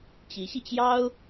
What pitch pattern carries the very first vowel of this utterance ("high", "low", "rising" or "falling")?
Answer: rising